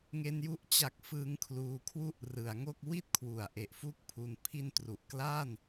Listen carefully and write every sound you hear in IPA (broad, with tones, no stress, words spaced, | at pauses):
ŋe˧nju˦˥ʔ t͡ɕa˨˩k̚ fɯː˦˥ŋkʰluː˧kʰwu˥˩ʔ rɯ˩˦a̯ŋo˥˩k̚ wi˥˩t̚kʰwu˩˦a̯ʔe˨˩ʔ fu˥˩k̚pʰu˧n pʰi˦˥ntru˨˩ʔklaː˥˩n